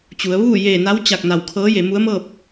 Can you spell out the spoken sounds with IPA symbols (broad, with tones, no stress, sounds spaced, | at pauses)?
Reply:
t͡ɕ u˩˧ ə̯ ʋ uː˥˨ j eː˧˩ n a˧˥ w t͡ɕ a˧˩ k̚ n a˧˩ w kʰ ɤː˧˥ j e˩˧ m u˧˥ ə̯ m ɤː˥˨ p̚